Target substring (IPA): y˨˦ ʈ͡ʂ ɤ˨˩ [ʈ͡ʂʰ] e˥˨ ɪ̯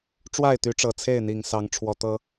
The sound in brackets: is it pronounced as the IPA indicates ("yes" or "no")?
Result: no